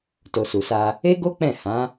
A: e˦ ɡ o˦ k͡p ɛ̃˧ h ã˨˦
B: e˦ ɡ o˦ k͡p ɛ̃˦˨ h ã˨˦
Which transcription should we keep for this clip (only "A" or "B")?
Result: B